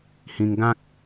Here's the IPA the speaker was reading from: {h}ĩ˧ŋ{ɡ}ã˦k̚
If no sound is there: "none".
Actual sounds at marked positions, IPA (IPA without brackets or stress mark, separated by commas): h, ɡ